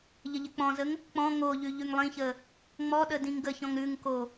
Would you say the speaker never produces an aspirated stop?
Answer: yes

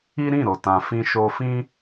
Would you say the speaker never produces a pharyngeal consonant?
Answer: yes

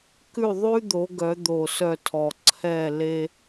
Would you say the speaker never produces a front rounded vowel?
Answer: no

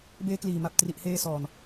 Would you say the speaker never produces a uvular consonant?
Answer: yes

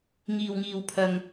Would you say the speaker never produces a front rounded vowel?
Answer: yes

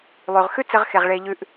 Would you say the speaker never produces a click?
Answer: yes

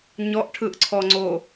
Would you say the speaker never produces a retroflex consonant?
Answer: no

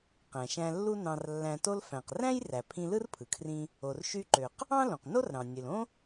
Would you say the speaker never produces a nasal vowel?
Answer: no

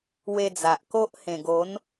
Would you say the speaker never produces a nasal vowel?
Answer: no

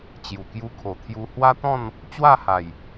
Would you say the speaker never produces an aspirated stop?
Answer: no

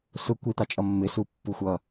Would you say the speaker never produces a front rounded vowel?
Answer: yes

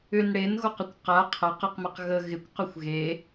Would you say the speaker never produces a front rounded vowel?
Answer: no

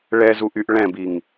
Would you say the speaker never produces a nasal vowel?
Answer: no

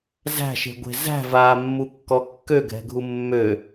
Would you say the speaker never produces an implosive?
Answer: yes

